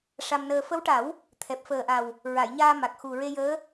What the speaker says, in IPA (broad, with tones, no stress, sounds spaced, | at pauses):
ʂ a˧ m n əː˧ f ə˧˥ w ʈ a˨˩˦ w | t̪ʰ ɛ˨˩ p̚ f əː˨˩ ʔ a˨˩ w | ɹ a˨˩˨ j ɲ aː˧ m a˨˩ k̚ x u˨˩ ɹ e˧ j əː˧˥